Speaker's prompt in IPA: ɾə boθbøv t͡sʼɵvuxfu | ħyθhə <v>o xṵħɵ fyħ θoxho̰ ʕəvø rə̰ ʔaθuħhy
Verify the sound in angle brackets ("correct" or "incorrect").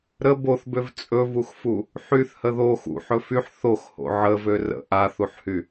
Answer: incorrect